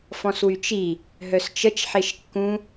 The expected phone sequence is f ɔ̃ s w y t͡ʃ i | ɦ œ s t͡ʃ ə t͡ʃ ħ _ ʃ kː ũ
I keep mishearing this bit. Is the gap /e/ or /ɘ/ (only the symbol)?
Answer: e